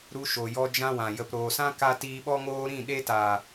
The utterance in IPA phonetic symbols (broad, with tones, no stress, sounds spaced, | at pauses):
ɾ u˧ ʃ o˨ j ɔ˧ d͡ʒ ã˧ w ã˨ j ə˨ p ɾ oː˨ s ã˦ k a˧ t iː˧ ɓ ɔ˦ ŋ oː˦ ɾ ĩ˦˨ ɗ e˧ t aː˨